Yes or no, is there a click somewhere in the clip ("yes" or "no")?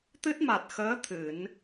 no